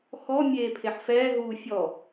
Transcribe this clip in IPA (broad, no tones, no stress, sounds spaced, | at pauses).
x ɔ mʲ eː pʰ e ħ f ɛː ɦ uː fʲ ɔ